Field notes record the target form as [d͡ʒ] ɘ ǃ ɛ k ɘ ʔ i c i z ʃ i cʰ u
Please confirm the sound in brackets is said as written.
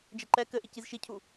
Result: yes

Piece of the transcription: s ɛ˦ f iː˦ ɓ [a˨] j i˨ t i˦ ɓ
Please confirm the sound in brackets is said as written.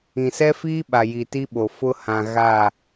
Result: yes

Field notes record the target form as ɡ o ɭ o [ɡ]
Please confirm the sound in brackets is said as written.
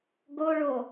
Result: no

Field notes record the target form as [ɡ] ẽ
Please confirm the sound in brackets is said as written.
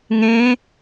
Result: no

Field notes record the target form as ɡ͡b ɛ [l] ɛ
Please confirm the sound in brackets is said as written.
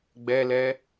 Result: yes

